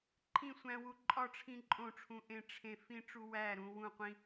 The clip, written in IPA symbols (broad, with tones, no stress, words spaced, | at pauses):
ǃʰĩ˥˨sʷæ̃˦wu˦ ǃʼɒ˥˨ʈ͡ʂʰĩ˦ ǃʼõ˥˨ʈ͡ʂʰũ˦ ʔẽ˦ʈ͡ʂʰẽ˦ fĩ˦ʈ͡ʂu˦ wæ˥˨ɾũ˦wũ˥˨ qʷĩ˦